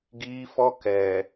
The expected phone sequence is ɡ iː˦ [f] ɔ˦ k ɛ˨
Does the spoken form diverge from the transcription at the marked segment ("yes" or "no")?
no